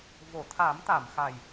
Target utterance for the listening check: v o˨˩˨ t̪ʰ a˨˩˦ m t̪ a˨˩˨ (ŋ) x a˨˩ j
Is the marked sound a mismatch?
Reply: yes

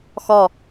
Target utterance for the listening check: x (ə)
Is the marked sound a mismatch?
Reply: yes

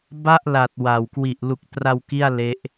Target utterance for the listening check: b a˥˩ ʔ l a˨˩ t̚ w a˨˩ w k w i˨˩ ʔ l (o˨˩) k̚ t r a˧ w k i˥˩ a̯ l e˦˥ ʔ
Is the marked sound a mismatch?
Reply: yes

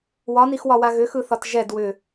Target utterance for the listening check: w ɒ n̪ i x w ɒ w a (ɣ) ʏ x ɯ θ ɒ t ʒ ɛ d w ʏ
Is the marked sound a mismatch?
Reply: no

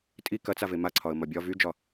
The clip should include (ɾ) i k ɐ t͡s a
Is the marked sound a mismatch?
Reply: yes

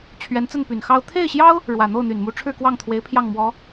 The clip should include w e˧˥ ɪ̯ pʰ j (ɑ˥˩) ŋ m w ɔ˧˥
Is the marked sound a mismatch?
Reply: no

